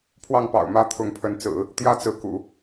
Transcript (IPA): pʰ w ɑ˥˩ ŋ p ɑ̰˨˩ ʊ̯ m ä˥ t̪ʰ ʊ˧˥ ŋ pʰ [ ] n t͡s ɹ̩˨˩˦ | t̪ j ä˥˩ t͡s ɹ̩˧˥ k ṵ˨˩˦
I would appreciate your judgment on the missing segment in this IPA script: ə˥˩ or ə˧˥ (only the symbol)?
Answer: ə˧˥